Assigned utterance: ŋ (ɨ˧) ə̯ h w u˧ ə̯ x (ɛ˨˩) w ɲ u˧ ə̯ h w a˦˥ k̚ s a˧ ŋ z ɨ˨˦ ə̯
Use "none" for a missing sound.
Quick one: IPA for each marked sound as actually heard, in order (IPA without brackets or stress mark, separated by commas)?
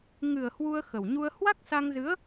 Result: ɨ˨˩, ə˨˩